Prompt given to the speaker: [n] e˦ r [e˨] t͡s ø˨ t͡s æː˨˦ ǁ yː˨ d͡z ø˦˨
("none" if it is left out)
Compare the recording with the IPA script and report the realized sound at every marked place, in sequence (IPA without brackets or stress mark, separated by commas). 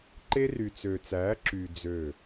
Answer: ǃ, y˨